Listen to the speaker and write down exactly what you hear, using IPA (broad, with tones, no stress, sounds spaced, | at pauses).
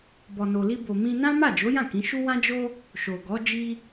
b ɔ˨ n o˨ l i˧ b o˨ m ĩ˧ n ã˦ m a˦˨ d͡ʒ o˨˦ j ã˦˨ k ĩ˨˦ ʃ u˦ w ã˦ d͡ʒ o˦ | ʃ o˨ ɡ ɔ˨˦ d͡ʒ i˦